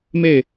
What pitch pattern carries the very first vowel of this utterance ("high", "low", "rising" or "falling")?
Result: falling